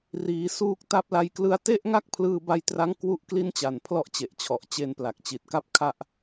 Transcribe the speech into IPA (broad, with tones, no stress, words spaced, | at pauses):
riː˩˦suː˦˥k̚ ta˦˥p̚la˧jklɯ˦˥a̯ te˥˩ʔŋa˥˩k̚ pʰlɯː˧ba˧jtra˦˥ŋ kwu˥˩ʔ kli˥˩nt͡ɕa˨˩n pʰlɔ˥˩ʔt͡ɕe˨˩ʔt͡ɕʰɔ˨˩ʔ t͡ɕe˧npla˨˩k̚t͡ɕi˨˩t̚ka˦˥p̚ kʰa˥˩ʔ